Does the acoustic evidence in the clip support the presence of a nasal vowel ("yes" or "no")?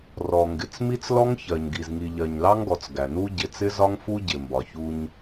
no